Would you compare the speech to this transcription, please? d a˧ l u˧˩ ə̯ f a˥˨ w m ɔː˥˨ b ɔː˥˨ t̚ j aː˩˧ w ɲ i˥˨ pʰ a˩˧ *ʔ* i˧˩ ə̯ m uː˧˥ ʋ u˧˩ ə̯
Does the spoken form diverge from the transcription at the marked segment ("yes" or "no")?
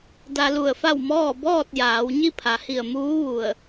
yes